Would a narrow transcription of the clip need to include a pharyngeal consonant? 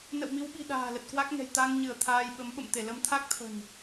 no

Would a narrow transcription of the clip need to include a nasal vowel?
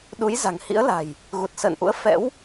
no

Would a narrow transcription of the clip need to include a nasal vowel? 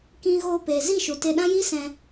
yes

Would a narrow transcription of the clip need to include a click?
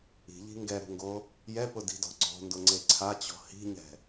yes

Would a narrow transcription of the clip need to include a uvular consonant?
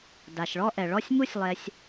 no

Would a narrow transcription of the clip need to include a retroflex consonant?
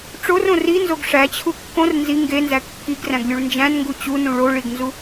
yes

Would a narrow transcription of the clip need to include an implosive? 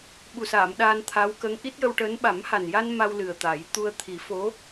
yes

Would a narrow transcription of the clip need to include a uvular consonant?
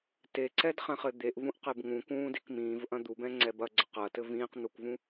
yes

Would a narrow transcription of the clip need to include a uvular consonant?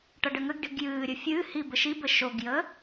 no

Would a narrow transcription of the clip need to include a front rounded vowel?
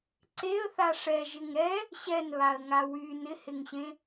yes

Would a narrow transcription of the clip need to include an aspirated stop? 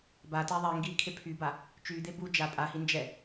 yes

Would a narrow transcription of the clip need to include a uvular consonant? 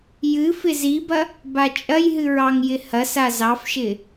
no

